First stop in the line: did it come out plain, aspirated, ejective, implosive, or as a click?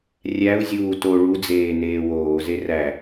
plain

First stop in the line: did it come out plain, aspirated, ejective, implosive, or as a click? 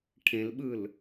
aspirated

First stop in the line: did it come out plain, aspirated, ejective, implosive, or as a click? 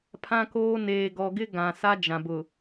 aspirated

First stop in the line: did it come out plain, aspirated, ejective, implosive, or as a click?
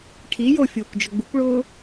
aspirated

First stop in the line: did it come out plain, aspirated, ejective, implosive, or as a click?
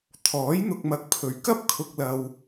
aspirated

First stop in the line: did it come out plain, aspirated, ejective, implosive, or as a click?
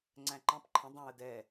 click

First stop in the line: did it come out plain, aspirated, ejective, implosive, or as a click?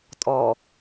ejective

